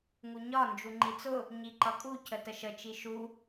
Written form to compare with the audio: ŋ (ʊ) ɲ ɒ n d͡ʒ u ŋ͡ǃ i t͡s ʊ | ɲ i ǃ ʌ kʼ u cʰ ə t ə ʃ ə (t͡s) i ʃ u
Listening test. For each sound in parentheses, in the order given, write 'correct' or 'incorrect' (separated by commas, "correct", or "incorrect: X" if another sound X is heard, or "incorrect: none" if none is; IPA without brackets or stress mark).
incorrect: u, incorrect: t͡ʃ